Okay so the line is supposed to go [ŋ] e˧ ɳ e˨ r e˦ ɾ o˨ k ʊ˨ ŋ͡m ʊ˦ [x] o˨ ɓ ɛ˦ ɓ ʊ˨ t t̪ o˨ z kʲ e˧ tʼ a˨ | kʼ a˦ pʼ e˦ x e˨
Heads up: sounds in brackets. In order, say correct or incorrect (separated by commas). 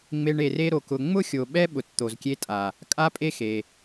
incorrect, incorrect